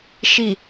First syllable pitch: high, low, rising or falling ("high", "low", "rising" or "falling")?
low